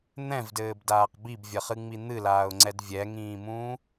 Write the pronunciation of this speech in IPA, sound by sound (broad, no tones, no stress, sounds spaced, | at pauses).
n̪ ɛ̃ v d ɘː b d aː q b i b vʲ ɐ χ ɨ ŋ͡m i n̪ ɨ l aː ʊ̯ ŋ͡ǀ ɛ d vʲ ɛ ŋ ĩː m ũː